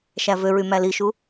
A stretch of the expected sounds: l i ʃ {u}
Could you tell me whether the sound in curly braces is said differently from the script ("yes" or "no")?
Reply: no